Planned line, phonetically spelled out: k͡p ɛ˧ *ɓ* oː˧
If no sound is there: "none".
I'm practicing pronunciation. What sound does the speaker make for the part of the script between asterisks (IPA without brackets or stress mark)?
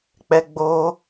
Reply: ɡ͡b